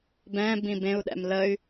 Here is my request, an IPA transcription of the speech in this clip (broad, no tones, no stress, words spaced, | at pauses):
bɛ̃ bĩbẽu̯ɗɛ̰m ləy̯